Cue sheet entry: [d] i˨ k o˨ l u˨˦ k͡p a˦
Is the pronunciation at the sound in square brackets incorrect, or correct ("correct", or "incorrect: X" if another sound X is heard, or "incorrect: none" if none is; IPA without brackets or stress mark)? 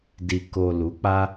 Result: correct